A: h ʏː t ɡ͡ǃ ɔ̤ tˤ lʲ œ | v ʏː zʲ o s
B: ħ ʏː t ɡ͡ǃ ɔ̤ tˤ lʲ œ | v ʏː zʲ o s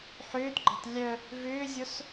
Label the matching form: B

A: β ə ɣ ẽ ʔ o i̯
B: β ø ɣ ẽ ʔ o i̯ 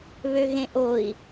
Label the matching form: B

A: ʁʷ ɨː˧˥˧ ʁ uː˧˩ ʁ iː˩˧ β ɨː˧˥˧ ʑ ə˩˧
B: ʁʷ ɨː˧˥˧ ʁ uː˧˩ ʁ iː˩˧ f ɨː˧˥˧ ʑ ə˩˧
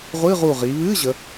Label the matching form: A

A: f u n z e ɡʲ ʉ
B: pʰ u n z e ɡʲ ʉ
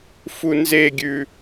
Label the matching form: A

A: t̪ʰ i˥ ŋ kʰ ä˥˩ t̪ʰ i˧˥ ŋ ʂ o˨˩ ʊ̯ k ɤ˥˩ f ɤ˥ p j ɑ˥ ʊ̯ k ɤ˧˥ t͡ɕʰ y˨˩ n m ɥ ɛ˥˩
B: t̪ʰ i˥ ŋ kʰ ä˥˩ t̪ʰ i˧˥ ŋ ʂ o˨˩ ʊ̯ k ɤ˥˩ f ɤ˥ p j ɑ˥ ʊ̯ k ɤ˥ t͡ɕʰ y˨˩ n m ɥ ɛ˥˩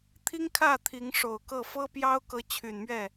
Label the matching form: A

